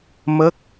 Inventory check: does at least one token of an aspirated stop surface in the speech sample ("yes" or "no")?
no